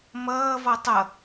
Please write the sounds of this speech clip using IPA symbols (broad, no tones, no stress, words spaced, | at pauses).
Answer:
mʌːvɔ tˤʌ